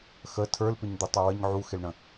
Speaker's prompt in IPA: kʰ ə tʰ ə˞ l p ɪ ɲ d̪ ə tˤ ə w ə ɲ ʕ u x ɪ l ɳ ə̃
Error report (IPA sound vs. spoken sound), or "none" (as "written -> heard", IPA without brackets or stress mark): kʰ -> x